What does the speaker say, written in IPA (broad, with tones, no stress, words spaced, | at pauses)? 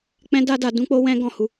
k͡pɛ̃˦da˦da˧ dũ˦k͡po˦wɛ̃˦ ɡɔ̃˦˨hu˧